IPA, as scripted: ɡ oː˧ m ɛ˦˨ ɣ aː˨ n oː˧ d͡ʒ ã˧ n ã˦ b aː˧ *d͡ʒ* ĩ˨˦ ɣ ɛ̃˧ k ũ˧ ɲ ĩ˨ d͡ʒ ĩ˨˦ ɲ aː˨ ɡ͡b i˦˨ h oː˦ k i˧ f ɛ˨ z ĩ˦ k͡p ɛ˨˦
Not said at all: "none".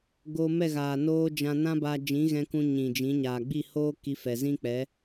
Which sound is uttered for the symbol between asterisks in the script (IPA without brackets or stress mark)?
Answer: d͡ʒ